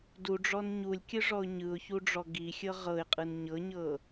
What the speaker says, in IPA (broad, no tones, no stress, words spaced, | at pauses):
duɖ͡ʐɔn ɲulʲkʲɯʐɔʊ̯ ɲɯʊ̯çuɖ͡ʐɔ ɡixʲɤ ʁɤɪ̯qʼɯn ɲɤɲɤ